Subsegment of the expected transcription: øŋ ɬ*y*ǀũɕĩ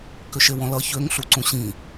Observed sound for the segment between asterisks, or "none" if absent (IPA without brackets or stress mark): u